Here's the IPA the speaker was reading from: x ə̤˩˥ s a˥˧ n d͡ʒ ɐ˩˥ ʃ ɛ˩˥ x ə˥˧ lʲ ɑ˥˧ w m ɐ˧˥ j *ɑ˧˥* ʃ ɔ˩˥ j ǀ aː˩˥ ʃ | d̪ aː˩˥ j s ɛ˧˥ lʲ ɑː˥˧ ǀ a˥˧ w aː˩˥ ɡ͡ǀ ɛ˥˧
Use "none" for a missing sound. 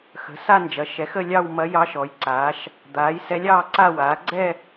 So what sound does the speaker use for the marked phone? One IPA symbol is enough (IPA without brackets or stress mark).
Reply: ɑ˧˥